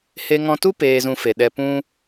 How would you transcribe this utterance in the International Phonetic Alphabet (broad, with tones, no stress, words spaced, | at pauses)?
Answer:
he˧ŋɔ̃˧tu˦ peː˧zũ˧fe˨ɗɛ˧ pũ˧